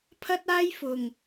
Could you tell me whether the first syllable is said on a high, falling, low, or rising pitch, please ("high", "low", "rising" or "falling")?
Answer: high